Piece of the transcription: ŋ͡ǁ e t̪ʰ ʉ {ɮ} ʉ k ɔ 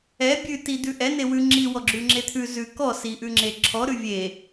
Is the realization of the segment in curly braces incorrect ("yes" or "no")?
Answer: yes